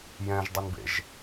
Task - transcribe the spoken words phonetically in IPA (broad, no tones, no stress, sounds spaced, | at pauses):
j ɛ̃ ʒ dˤ ə n b ḛ ʒ